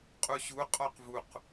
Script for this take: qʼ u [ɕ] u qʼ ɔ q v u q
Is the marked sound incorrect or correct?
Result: correct